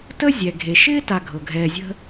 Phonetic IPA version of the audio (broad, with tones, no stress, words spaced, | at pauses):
tə˥zʲɛ˩ ɡʱe˩ʃɪː˥ta˨ ɡʱɤ˩ɡʱɛː˨zʲə̤˦